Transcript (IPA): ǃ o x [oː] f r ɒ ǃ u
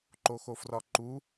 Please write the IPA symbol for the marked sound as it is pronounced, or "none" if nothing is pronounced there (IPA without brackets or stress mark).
o